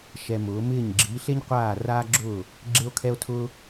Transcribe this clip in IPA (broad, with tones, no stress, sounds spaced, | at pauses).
ʃ ɛ˧ m ʊː˩˥ m ɪː˥˩ ɲ ɡ͡ǁ iː˩˥ ɬ e˥ ɲ qʷ aː˥˩ r aː˥ ɡ͡ǁ ʊː˥˩ | ɡ͡ǁ e˥ o̯ kʰ ɛ˥ o̯ tʰ ʊː˥